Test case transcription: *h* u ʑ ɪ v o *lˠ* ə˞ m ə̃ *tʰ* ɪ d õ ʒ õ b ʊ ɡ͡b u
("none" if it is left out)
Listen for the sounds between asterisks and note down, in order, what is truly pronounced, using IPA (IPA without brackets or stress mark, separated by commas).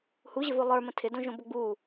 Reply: h, lˠ, tʰ